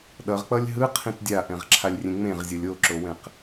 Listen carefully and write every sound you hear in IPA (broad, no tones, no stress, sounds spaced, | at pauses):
ɗ ʌ ʁ k͡p ʌ lʲ ɦ ɯ qʰ ĩ t dʲ a ʔ ɛ̃ ʁ ǁʰ a lʲ rʲ ẽ ŋ͡m ẽ ʁ zʲ o lʲ o ǁ o w ɛ̃ q